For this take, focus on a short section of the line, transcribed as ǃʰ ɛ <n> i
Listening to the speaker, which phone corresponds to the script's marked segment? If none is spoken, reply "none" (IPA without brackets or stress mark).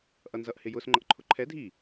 dʱ